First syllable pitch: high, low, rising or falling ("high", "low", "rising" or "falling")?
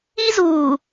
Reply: high